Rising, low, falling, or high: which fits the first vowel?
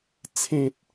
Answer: low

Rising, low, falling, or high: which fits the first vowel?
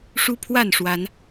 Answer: high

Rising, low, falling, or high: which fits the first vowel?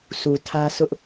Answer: low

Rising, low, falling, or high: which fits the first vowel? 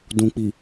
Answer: low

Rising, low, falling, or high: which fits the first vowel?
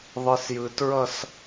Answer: high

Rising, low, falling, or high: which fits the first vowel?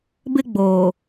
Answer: high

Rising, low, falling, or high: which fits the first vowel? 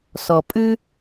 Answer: low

